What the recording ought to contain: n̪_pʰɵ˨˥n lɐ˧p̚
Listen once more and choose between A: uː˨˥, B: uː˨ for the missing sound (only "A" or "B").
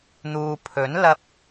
B